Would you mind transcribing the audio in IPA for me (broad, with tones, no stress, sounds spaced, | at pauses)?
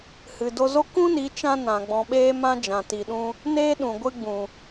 h ɨ˨ d o˧ z o˦ k ũ˦ n i˨˦ t͡ʃ ã˦ n ã˨ ɡ͡b ɔ̃˨ ɓ eː˧ m ã˧ d͡ʒ ã˨ t i˨ ɗ ũ˧ | n eː˦ ɗ ũ˨ ɡʷ ɨ˦ ɡ͡b ũ˨